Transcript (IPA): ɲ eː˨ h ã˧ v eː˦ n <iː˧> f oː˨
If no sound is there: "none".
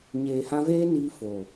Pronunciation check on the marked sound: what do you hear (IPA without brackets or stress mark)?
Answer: iː˧